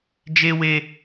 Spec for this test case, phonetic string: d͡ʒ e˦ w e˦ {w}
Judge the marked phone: incorrect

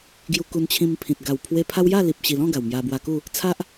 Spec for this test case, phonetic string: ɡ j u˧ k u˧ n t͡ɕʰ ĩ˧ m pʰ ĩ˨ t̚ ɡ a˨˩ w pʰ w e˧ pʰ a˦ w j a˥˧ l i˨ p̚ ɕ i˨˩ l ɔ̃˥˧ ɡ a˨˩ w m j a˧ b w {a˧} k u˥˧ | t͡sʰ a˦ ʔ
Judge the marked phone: correct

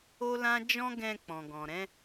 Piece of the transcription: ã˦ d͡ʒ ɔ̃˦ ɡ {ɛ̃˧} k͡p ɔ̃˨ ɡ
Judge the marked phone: correct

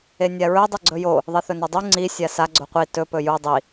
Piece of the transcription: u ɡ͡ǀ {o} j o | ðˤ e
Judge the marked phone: incorrect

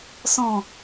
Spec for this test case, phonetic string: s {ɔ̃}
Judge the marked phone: correct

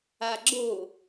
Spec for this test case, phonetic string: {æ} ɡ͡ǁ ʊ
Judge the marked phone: incorrect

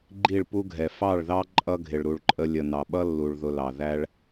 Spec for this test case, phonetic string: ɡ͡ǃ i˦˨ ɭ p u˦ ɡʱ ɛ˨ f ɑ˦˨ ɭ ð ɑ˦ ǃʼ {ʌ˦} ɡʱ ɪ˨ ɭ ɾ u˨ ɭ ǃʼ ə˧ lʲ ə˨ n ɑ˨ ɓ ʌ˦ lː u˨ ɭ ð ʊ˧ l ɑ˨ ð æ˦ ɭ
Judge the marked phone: correct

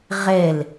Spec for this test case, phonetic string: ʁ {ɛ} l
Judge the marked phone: correct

